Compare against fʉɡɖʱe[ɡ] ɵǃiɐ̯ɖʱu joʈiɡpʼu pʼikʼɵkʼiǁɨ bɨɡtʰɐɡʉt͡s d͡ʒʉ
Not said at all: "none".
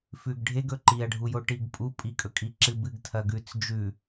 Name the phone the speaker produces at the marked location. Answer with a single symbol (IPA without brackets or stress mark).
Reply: ɡ